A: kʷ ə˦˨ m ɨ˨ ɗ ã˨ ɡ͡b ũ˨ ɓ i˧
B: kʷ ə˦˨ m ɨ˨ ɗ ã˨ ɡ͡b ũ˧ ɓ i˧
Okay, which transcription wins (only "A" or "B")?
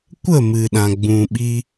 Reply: A